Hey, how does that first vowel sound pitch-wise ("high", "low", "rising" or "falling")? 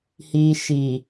low